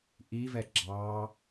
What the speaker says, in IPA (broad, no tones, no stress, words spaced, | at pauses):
ʔivɛ ɡ͡ǁɑ